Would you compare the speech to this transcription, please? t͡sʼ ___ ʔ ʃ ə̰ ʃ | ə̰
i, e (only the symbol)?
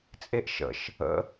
e